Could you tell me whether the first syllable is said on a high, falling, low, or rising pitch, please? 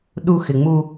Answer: low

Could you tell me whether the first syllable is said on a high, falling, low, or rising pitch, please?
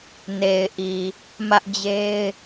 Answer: low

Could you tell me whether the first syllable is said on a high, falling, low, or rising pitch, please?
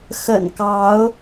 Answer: low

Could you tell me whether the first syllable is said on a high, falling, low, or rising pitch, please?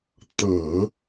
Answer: low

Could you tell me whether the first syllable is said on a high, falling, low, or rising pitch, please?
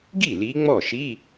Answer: falling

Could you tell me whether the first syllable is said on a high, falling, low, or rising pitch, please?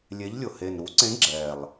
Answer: rising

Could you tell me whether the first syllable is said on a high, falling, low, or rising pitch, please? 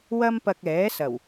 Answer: high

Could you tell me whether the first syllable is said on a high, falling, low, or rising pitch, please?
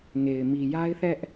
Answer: low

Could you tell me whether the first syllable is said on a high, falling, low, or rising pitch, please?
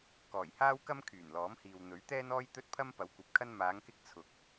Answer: low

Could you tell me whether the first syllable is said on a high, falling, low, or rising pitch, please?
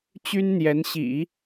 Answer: high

